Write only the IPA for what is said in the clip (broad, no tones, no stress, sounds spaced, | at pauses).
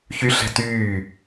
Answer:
ç y ɬ ɛ̤ t yː